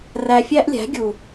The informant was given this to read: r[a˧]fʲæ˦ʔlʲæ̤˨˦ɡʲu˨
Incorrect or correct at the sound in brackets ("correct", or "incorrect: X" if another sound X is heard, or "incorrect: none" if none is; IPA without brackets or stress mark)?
incorrect: æ˧